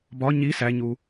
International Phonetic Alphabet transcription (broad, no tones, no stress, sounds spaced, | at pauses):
b ɒ ɲ i s æ ɲ u